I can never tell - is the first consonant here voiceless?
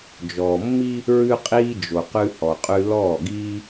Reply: no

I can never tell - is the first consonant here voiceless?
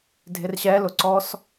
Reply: no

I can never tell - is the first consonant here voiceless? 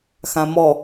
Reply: yes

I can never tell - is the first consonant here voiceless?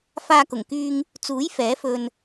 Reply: yes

